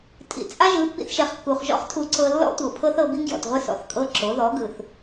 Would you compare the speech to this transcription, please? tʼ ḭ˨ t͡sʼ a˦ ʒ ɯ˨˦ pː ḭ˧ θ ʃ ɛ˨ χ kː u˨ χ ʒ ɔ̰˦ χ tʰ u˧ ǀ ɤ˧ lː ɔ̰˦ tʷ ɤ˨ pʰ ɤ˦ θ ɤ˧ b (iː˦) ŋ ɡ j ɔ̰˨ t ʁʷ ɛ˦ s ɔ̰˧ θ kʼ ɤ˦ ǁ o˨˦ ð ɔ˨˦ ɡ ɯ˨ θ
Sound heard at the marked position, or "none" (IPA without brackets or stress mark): i˦